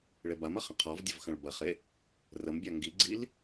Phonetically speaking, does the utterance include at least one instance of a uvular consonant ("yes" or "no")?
yes